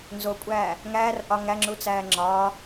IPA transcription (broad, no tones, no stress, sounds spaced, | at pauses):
n z o kʷʼ æː | ŋ æː r ʔ ɒ ŋ æ ŋ͡ǁ u t͡s æː ŋ͡ǁ ɒː